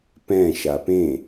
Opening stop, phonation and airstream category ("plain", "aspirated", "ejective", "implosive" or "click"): plain